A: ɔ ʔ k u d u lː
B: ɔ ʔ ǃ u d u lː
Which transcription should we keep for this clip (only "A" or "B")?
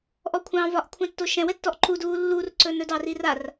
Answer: B